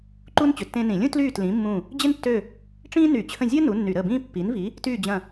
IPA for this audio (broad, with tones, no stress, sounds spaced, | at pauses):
ǃ u˥ n t͡ɕ ʏ˨˥ tː ẽ˥ n ĩ˧˩˧ lʲ ũ˥ t l yː˦˨ t l ĩ˨˥ mː ũ˦˨ | d͡ʑ ɪ˥ n tː ø˦˨ | ʈ͡ʂ ĩː˥ n y˧˩˧ t͡ɕʰ ə̃˦˨ zʲ əː˥ n u˨˥ nː y˧˩˧ ɾ əː˦˨ b ĩː˥ pː i˨˥ n v i˨˥ | t yː˦˨ d͡ʑ ɐ̃˦˨